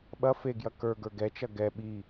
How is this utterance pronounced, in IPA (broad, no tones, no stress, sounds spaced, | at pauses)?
ɓ ɐ f e ɡ j ɐ k ə˞ ɡ ə˞ ɡ ɛ t͡ʃ ɐ ɡ ɛ ɓ i